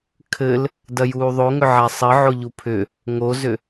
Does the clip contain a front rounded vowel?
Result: yes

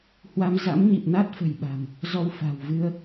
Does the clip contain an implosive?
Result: yes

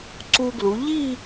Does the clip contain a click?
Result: yes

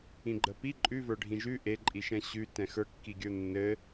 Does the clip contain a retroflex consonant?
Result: yes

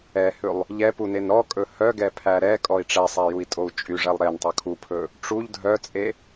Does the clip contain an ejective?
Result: yes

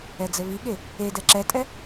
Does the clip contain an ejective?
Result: yes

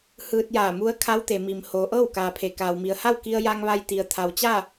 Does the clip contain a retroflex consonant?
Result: no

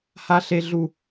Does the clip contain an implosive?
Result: no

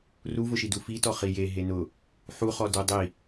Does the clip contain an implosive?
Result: no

